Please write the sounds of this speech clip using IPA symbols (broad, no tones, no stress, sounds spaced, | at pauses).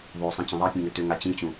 ðˤ o sˤ ĩ t͡ɕ ə̃ ðˤ a pʲ ũ ŋ ø t ø ŋ a t͡ɕ ĩ t͡ɕ ũ